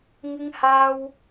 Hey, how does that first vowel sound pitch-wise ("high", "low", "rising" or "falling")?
high